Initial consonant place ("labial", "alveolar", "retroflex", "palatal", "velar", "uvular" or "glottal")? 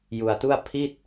palatal